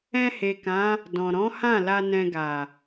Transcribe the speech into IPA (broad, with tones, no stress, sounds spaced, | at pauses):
ɛ̃˧ h e˨ k ã˨˦ | d ɔ̃˨ ɾ ɔ̃˨˦ h ã˦˨ l a˧ n ɛ̃˧ ɡ a˨